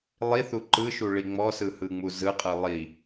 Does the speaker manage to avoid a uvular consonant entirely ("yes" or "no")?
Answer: no